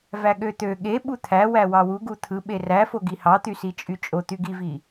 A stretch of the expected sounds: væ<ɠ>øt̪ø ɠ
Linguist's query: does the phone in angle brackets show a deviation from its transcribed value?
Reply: no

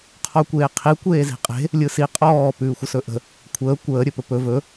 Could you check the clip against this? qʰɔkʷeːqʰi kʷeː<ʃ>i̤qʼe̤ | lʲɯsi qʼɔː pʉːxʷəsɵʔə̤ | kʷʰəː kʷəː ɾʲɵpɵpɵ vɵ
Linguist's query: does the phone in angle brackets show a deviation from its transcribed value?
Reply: yes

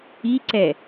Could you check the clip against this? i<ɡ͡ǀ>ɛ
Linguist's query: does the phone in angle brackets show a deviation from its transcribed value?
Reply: yes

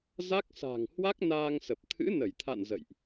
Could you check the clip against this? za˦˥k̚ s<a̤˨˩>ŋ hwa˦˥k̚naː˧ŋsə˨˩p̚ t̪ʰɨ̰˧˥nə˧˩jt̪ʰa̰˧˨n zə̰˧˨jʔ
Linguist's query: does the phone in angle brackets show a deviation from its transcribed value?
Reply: no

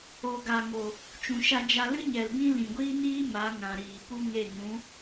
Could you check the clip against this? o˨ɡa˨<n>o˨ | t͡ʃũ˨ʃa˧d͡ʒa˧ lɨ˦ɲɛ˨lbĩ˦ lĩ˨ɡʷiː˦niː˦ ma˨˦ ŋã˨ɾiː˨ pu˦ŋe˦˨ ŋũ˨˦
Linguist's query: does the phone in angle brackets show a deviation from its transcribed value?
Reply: yes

